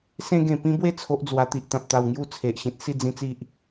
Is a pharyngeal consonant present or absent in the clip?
absent